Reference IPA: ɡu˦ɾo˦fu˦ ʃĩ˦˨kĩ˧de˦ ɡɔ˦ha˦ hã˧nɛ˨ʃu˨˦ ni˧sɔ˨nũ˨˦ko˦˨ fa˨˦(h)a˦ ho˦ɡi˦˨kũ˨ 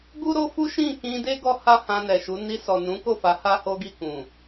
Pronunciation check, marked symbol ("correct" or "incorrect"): correct